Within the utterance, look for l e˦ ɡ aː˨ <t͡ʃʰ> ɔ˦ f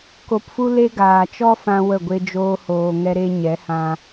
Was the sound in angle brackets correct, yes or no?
no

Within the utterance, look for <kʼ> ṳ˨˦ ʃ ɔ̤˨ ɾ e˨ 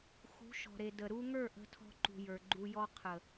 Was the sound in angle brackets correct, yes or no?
no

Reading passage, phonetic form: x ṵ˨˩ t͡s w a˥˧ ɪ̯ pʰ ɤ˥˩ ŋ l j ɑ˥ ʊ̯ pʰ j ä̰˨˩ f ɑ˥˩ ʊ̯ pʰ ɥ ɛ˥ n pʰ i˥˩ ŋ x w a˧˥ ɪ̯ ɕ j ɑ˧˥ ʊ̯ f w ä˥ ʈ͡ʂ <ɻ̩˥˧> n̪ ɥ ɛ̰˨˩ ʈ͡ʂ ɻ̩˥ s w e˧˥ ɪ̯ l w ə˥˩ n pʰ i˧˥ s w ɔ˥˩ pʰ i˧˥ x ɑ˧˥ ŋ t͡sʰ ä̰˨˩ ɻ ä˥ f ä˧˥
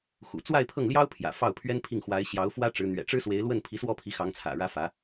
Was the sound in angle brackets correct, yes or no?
no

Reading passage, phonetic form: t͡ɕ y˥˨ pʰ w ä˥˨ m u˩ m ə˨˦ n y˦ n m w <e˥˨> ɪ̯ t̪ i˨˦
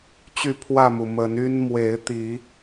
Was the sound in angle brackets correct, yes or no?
no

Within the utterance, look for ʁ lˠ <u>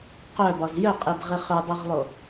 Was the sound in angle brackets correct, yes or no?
no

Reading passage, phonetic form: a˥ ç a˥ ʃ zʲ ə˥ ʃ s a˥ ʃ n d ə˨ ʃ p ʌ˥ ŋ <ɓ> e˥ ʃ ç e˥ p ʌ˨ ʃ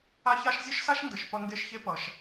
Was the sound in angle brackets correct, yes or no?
no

